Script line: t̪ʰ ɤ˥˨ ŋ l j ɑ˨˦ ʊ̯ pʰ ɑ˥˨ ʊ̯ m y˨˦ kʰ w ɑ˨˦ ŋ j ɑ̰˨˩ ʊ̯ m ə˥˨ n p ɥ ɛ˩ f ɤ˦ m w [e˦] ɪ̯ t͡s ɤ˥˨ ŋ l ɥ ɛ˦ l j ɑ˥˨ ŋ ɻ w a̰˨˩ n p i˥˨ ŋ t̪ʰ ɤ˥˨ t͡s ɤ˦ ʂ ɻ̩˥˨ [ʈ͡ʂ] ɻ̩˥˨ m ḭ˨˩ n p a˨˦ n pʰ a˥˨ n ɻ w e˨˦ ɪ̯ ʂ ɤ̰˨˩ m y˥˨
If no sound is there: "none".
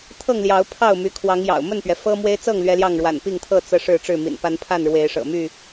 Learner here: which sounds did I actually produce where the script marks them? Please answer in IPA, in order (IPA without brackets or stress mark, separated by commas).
e˦, ʈ͡ʂ